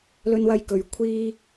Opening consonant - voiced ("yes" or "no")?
yes